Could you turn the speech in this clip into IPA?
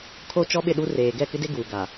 kʰ o˦ t͡ʃ ɔ˦ ɓ ɪ˦˨ ɗ u˦ r eː˨ ɡ ɛ˦˨ k ɪ˦ d e˦ ɡ uː˨ ɡ a˨

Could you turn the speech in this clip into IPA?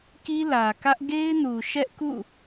k i˦ l ä˨ k ä˦ ʔ ɡ e˦ ɪ̯ n u˨ ʃ ɛ˦ ʔ k ṵ˦˨

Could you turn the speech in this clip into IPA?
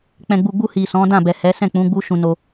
k͡p ɛ̃˨ ɡ͡b u˨ ɡ͡b u˧ h i˨ s ɔ̃˨˦ d ã˦˨ b ɛ˨ h ɛ˨˦ s ɛ̃˦˨ k͡p ũ˨˦ ɡ͡b u˦ ʃ ũ˧ n o˧

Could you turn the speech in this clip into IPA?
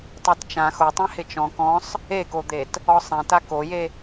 tˤ ɛ t t͡ʃ ã x o tˤ ɛ̃ h ɪ t͡ʃ ɔ̃ k ɔ̃ sˤ | e k o d̪ e t | ɔ sˤ ɛ̃ t a k o j e

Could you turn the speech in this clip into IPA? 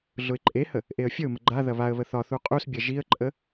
ɮ ʊ ɪ̯ ǃʼ e h ə | ʔ e ə̯ fʲ ə ʊ̯ m ə ɡ͡ǃ a ð ɐ β a ə̯ β ə θ ɒ θ u qʼ u s bʲ ɐ ʒ i ə̯ ǃʼ ə

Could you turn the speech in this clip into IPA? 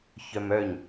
ç œ m œ ɲ

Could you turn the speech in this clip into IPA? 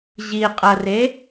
ʑ i qʼ ɐ r e

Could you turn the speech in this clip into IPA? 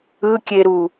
ɯ kʲ e ɾ u

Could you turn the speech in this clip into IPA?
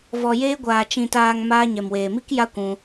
v ɔ˨ j eː˧ ɡʷ aː˨ t͡ʃ ĩ˨ t aː˨ ŋ m aː˧ ɲ ɛ˨ m w eː˨ m i˦ k j a˦ kʷ ũ˧

